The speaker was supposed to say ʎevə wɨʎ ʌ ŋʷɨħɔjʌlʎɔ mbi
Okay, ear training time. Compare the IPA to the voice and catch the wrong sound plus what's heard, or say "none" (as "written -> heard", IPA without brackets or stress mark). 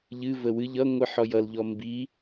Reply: e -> ɨ